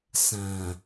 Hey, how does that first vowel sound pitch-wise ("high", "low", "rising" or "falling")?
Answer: low